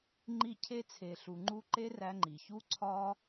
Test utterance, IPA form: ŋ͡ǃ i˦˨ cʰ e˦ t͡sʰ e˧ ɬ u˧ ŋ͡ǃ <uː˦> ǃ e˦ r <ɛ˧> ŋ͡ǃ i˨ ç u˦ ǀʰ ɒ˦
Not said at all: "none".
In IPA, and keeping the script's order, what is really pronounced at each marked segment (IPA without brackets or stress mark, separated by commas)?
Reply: u˦, æ˧